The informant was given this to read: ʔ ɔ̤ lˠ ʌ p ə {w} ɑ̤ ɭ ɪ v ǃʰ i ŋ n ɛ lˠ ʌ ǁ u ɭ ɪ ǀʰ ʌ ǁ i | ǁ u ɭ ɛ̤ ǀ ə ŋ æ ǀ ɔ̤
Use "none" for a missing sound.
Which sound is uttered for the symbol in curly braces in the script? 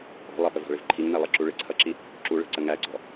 v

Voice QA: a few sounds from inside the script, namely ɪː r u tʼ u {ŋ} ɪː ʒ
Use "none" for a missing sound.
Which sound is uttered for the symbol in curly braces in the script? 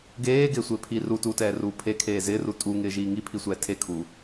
ŋ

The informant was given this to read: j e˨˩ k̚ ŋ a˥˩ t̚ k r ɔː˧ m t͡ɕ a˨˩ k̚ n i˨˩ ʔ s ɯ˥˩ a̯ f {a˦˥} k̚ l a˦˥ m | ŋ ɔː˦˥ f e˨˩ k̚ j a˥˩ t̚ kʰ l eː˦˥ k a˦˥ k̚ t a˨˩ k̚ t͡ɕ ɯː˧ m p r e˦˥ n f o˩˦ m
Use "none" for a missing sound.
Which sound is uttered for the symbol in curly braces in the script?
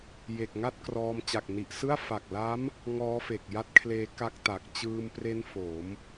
a˨˩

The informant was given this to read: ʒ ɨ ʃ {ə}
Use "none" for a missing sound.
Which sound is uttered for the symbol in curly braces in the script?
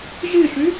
ʉ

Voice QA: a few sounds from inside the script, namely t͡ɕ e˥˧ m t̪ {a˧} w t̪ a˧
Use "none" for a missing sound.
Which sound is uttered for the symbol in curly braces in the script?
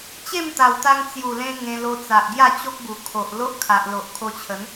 a˨˩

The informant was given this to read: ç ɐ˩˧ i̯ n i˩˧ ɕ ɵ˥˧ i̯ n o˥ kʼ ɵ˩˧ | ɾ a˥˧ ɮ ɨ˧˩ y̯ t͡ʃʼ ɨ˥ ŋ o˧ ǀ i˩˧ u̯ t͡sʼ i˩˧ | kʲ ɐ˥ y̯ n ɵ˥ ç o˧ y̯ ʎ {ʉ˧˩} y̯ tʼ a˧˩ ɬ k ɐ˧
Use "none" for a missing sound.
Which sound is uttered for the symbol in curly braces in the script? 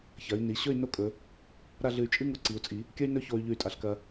ʉ˧˩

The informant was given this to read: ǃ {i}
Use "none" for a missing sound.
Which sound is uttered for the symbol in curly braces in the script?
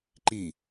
i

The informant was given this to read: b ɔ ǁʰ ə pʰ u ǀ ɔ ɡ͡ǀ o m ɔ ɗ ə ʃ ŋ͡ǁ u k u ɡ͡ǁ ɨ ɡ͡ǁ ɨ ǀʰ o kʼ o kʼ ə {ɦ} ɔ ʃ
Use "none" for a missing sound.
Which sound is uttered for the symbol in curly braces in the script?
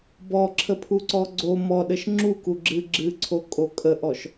ʔ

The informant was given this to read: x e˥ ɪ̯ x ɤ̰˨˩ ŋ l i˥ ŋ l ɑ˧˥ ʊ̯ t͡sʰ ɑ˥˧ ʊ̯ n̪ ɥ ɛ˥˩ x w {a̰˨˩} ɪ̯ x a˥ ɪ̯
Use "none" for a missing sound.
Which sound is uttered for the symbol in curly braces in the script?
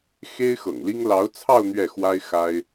a˥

